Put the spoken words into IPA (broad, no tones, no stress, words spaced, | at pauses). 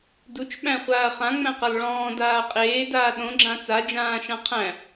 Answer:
dut͡ʃɓæ̃χʷaːɐ̯ χãŋ͡mæ̃qalˠ ɭɔ̃ːdaː qʼeːdaː ɗõɡ͡ǁã t͡sad͡ʒãːʃã qʰæ̃